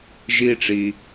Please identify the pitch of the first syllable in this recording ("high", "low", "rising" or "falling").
high